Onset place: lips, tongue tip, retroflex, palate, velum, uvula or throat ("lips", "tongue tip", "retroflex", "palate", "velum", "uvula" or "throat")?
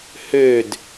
throat